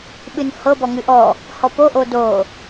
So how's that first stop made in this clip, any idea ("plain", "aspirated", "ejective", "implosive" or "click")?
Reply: implosive